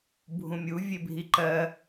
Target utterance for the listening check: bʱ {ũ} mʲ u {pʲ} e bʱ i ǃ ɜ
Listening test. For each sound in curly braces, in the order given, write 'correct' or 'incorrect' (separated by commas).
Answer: correct, incorrect